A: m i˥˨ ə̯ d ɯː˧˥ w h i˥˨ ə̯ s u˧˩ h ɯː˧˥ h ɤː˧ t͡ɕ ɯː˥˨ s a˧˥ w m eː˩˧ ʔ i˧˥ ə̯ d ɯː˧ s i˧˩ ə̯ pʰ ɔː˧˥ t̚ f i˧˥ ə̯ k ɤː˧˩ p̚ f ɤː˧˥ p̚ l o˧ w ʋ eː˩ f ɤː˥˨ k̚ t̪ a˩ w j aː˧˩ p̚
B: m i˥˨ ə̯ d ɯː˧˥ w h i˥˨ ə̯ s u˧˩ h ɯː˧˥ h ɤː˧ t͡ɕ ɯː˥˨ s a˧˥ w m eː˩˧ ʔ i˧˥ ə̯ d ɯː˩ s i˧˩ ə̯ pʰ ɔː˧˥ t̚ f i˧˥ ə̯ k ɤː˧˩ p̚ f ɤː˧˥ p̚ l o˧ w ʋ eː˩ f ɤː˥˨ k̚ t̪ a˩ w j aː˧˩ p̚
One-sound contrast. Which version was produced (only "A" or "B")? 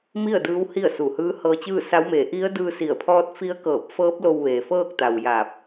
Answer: A